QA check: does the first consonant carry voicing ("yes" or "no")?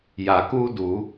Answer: yes